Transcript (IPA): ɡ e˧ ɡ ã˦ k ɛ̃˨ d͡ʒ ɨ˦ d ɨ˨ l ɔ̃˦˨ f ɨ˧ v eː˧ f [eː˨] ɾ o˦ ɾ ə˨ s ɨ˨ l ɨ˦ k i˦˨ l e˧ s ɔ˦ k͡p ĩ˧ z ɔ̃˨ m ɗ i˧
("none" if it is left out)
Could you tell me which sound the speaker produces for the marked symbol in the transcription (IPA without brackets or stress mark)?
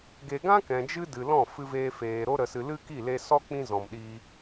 eː˨